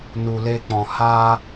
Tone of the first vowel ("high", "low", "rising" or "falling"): low